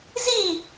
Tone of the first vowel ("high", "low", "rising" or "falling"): falling